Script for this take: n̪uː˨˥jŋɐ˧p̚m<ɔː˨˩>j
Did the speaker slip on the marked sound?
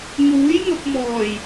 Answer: no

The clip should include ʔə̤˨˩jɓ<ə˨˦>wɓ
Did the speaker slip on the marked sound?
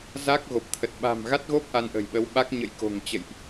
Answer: no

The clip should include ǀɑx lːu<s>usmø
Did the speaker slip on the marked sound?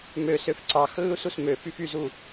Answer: no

